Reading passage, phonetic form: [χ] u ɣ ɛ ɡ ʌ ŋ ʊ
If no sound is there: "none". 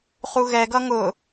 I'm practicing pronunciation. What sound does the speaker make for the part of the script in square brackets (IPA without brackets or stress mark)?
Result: χ